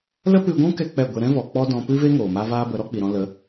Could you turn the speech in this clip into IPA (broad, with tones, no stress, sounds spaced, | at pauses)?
l ə˦ p ɨ˧ ɡʷ ũ˦ k ɛ˦ k͡p ɛ˦˨ ɡʷ e˧ ɾ ɛ̃˦ v ɔ˨ k͡p ɔ˦ d ɔ̃˧ p ɨ˦ v e˦ ŋ oː˨ m a˦ v aː˦ b ə˨˦ ɾ ɔ˦ k͡p i˨ ɾ ɔ̃˧ l ə˨˦